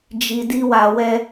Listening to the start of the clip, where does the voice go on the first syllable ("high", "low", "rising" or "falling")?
low